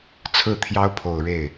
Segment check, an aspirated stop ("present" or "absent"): present